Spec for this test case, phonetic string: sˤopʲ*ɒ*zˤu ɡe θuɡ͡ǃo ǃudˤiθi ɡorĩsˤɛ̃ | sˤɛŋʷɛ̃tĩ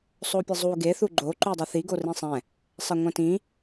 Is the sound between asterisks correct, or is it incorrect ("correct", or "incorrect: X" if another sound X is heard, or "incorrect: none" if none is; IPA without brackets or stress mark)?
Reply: incorrect: ʌ